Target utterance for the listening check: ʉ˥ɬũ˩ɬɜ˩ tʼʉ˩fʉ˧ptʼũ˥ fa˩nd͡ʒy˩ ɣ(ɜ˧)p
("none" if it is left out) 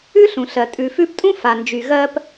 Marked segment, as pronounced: ɜ˧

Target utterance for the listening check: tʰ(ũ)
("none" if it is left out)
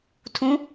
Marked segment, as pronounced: ũ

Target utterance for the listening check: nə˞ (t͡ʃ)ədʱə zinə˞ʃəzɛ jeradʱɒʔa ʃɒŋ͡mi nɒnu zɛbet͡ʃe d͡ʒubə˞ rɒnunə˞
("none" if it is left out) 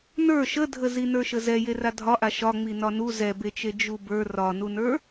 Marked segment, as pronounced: ʃ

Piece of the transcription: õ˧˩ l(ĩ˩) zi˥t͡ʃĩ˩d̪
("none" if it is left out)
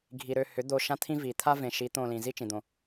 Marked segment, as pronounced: ĩ˩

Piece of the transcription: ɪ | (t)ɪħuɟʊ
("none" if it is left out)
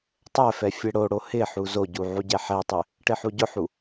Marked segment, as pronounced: ʈ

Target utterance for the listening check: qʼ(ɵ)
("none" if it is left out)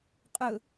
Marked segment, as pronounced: ɵ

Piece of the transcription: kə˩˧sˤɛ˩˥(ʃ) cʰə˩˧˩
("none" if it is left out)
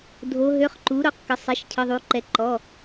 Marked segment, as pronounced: ʃ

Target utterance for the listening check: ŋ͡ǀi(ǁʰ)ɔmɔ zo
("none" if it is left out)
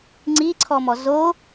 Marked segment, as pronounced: ǀʰ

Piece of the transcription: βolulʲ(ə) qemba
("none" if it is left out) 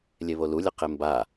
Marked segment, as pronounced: ə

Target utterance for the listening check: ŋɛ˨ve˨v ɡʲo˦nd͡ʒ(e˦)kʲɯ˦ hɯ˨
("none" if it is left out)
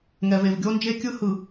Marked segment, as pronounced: e˦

